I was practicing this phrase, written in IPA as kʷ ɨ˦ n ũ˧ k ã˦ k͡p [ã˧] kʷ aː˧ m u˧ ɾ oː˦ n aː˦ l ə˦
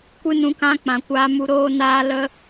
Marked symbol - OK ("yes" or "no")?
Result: no